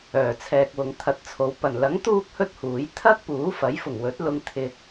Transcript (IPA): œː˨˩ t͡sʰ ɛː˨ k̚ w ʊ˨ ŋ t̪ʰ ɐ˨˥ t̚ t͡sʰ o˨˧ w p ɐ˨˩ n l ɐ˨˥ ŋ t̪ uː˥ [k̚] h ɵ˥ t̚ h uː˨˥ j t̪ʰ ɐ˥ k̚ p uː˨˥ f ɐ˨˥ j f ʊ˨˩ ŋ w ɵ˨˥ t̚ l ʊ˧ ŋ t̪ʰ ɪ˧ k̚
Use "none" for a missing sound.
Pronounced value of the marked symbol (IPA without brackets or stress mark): k̚